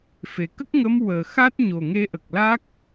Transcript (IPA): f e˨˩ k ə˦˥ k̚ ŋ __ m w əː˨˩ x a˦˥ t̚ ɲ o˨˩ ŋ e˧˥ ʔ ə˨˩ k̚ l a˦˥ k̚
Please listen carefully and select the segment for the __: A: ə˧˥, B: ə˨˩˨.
A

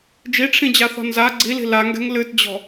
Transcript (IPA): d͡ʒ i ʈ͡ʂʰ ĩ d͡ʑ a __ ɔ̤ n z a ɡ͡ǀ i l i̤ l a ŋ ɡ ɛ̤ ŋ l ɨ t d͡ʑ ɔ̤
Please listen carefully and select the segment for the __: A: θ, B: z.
A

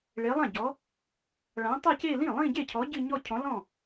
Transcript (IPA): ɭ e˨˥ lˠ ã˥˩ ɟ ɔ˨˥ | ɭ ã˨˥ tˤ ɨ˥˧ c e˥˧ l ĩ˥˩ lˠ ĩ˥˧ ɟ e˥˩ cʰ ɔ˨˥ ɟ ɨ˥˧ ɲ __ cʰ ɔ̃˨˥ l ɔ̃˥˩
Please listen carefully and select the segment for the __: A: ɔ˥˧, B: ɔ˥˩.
A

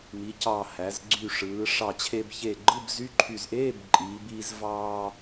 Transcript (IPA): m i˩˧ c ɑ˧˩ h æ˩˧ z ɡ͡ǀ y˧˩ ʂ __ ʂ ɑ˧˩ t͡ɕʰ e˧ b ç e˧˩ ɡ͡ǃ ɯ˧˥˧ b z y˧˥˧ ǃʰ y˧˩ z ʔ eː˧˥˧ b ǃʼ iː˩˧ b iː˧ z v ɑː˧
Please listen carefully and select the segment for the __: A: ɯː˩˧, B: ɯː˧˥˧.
A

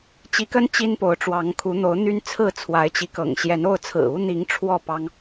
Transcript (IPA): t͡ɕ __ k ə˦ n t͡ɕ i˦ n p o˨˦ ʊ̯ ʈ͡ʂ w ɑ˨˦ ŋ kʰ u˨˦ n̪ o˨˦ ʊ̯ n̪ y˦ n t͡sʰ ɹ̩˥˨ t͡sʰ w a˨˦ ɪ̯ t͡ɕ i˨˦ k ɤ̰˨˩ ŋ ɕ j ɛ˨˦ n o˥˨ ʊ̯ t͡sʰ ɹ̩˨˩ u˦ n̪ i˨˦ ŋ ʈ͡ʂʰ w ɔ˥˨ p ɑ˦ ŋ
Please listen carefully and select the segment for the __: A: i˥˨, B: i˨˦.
B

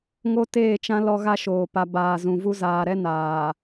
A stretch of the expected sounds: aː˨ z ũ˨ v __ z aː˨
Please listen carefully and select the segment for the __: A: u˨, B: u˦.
B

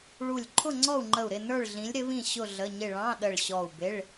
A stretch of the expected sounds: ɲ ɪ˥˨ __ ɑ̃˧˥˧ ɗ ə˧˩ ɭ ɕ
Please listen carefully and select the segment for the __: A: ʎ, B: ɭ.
B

